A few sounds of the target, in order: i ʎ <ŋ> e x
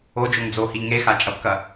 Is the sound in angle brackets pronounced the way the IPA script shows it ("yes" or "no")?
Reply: yes